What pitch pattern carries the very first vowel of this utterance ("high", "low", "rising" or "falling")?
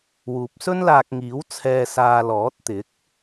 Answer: low